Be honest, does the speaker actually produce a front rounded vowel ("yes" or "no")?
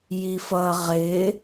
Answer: no